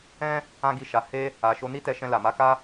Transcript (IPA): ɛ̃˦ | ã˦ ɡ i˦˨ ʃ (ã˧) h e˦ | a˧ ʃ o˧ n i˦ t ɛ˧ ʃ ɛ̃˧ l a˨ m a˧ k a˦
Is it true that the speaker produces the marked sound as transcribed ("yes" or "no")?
no